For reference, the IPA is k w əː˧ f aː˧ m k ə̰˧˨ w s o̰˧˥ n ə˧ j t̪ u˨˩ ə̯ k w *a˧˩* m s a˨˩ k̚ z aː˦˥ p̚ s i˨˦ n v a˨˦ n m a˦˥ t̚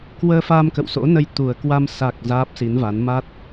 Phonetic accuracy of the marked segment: incorrect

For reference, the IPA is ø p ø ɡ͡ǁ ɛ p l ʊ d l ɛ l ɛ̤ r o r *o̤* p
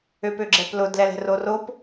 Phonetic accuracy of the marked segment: incorrect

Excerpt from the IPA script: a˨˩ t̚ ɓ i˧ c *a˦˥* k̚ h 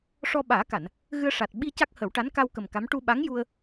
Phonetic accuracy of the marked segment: correct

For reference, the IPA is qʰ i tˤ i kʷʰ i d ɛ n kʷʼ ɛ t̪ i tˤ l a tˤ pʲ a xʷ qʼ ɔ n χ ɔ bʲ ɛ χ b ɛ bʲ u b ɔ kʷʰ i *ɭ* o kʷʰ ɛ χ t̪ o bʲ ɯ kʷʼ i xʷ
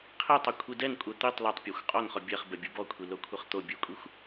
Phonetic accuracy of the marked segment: incorrect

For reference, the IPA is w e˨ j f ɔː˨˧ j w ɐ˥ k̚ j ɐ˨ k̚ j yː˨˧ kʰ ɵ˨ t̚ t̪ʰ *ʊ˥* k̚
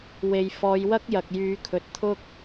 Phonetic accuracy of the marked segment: correct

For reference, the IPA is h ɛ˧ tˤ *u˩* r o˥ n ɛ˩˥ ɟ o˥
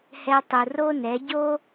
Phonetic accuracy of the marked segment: correct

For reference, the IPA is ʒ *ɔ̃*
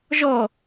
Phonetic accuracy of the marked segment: incorrect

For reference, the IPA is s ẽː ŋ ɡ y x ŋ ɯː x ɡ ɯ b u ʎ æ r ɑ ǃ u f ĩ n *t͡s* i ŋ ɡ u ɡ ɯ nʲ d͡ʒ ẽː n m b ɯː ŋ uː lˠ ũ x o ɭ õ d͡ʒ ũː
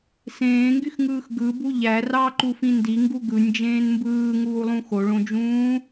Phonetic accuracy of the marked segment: incorrect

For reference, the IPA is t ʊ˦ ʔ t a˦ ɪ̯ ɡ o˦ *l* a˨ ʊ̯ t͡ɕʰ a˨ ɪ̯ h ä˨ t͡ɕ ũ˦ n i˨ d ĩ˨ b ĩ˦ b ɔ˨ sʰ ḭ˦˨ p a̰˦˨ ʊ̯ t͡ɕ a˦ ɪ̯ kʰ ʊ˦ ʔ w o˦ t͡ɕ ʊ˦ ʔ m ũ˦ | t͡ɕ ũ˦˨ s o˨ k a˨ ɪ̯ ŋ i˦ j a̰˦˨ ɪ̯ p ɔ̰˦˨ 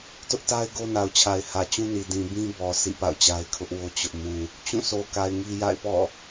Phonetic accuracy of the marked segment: incorrect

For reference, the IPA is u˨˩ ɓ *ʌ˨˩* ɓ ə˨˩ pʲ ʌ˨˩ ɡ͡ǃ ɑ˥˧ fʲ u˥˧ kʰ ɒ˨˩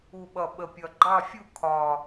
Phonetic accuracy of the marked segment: correct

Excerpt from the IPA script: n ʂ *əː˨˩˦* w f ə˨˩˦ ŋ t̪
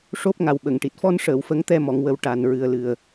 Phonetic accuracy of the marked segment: incorrect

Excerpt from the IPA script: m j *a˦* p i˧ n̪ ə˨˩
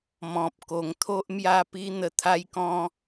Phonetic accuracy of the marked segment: incorrect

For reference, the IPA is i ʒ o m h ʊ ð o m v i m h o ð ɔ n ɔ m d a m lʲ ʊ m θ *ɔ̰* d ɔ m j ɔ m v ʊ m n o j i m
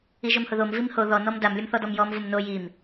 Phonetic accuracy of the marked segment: incorrect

